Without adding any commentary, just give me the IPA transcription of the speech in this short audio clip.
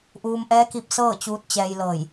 ʔuː˧mʔɛː˧˥ki˧p̚ sɤː˥˨t͡ɕuː˧t̚t͡ɕɛː˧j lɤː˧˩j

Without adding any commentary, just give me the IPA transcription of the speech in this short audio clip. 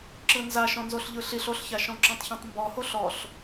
ǁɯnza ʃɔ̃nzoɬʎɯɬiɬ oɬçaʃɔ̃ǁɔ̃tˤ çɔ̃tˤmbɔho ɬɔɬ

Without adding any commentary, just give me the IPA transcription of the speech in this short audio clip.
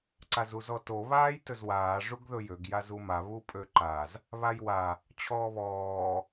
ǀazuzɔto βaːjtɵzwaː ʐuɡðɵjøɡ jazuma βupʼøǃaz | βajwa | t͡ɕʰɔːβɔː

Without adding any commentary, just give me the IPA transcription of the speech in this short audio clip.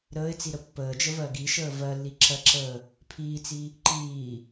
ɾəːɪ̯t͡siɾə pːəːd͡ʒəvɜ ɡiʃəː vɜlːiǁɜǁəː | pʰiːt͡si | ǃiː

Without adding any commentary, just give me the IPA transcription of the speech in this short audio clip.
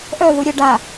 ʔœðu ɾʲə ɖa

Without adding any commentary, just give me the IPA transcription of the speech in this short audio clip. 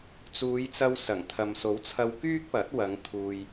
t͡suː˨˧jt͡sɐ˧w sɐ˨˩ŋ t̪ʰɐ˨mso˨˥wt͡sʰɐ˧w kyː˥k̚pɐ˨˥t̚ wɐ˨˧ŋ t̪ʰuː˧j

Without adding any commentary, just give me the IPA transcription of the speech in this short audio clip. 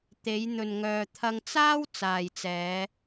t̪e˨˧jn̪ɵ˨n ŋœː˨t̪ʰɐ˧ŋt͡saː˥w t͡saː˨jt͡sɛː˨˧

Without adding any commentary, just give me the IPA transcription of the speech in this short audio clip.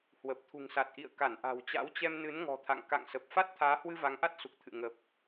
hwə˨˩p̚t̪ʰṳ˨˩ŋ sa˨˩t̚ʔḭ˧˨ə̯ ka˧˩nʔa̤˨˩wt͡ɕa̰˧˥wt͡ɕɛ˧m nɨ˨˦nŋɔ̤˨˩t̪ʰa̰˧˨ŋ ka̰˧˨ŋsə˨˩p̚ fa˦˥t̚t̪ʰaː˨˦hwɨ˧ va˨˦ŋʔa˦˥t̚su˨˩k̚t̪ʰɨ̰˧˨ ŋə˨˩p̚

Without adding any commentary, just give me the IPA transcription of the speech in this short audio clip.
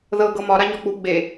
ðɤ ɡɤmɒ ɾaɲɒk͡pu ɡ͡be

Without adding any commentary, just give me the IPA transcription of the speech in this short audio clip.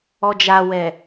ɔd͡ʒawɛ

